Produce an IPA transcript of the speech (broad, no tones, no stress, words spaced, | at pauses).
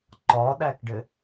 ǃɒɗækɖɘ